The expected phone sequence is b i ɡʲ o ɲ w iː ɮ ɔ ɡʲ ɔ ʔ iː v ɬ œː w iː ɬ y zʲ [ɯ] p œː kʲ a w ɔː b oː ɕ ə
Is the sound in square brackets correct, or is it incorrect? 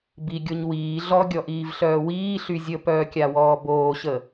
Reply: incorrect